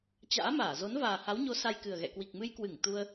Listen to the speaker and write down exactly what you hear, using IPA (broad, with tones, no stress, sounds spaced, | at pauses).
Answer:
t͡ɕ a̰ː˧˥ m aː˧˩ z o˨˦ n v aː˨˩ h a˨˦ w ɲ o˨˦ s a˧ j k ɨ˨˩ ə̯ ɣ ɛ̰˧˨ k w i˨˩ k̚ m ɨ˧ j k w ɨ˧˩ ŋ t̪ u˧ ə̯